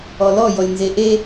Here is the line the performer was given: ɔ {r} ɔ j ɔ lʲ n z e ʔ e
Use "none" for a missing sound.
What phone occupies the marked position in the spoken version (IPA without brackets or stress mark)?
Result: l